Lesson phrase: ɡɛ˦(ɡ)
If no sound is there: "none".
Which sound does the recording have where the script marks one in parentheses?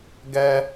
none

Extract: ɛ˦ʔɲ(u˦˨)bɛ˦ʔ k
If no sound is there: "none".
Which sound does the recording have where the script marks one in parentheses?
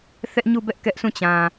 u˦˨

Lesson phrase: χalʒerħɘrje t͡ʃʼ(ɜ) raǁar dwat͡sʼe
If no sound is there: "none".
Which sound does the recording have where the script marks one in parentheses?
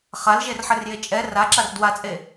ɛ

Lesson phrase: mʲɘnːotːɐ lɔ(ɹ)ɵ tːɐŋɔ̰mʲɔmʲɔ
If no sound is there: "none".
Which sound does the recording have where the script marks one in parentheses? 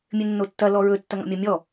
ɹ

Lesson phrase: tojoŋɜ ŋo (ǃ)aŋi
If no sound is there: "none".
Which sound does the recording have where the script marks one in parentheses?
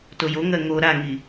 ɾ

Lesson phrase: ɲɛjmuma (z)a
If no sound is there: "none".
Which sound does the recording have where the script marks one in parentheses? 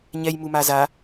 z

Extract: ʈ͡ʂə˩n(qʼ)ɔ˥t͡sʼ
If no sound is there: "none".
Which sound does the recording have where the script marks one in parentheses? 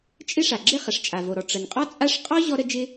qʼ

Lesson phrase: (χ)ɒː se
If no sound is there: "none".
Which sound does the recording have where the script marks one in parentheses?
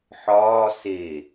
ħ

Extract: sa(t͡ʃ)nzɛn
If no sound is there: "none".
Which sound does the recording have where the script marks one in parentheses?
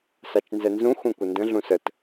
t͡ʃ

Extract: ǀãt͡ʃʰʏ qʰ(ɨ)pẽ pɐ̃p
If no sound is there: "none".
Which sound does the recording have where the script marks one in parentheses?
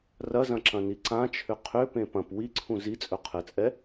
ʏ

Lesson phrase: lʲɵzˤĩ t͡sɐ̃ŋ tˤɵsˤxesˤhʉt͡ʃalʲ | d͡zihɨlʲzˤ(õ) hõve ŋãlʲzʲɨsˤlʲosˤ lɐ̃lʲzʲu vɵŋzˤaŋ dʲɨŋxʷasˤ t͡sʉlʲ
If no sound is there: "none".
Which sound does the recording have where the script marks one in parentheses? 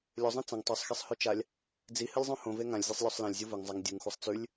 õ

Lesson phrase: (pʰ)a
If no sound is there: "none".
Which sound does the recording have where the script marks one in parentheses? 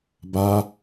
b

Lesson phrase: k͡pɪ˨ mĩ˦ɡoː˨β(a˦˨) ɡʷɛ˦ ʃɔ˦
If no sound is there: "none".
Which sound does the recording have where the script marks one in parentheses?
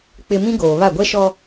a˦˨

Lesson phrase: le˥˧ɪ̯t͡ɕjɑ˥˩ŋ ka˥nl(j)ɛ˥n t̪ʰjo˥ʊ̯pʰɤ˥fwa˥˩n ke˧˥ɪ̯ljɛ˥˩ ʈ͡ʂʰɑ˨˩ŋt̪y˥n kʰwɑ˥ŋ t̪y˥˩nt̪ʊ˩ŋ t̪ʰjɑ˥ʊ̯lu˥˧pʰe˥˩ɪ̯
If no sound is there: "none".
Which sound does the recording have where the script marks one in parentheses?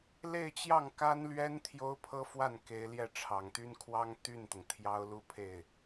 ɥ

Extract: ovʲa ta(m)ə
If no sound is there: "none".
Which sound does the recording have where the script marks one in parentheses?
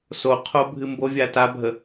bʱ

